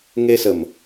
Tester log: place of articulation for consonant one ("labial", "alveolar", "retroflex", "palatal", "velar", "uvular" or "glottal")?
velar